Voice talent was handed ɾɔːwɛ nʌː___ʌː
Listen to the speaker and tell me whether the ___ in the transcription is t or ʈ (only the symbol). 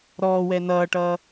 ʈ